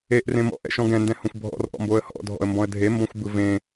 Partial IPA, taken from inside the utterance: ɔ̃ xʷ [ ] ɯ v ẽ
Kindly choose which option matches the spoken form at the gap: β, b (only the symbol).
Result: b